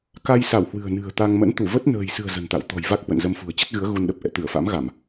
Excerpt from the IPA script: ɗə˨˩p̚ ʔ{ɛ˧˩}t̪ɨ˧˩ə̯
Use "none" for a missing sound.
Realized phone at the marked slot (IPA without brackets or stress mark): ɛ̰˧˨